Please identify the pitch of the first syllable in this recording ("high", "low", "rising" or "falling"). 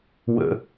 low